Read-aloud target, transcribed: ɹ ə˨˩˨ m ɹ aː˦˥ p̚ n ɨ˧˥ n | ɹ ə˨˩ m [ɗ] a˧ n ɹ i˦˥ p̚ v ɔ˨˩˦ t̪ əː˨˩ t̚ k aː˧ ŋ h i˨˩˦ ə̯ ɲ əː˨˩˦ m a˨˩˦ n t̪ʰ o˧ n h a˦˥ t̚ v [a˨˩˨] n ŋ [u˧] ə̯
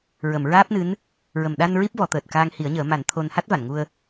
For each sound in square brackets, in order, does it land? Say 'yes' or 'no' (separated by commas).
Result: yes, yes, yes